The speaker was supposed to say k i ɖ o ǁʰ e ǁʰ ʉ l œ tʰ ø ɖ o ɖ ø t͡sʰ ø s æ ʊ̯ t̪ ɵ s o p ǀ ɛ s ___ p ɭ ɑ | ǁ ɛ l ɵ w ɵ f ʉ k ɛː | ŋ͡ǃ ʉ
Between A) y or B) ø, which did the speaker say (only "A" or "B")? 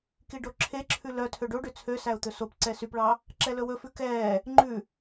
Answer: A